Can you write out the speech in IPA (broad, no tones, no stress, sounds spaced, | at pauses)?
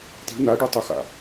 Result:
t i̤ n a ɖ ɯ tˤ ɯ x a̰